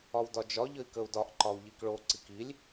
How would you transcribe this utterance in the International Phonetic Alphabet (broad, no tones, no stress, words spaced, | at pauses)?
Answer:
ɒwdɒd͡ʒɒ ʎəi̯kəu̯dɒʔ ǃɒu̯ʎikɭo ǀikilʲ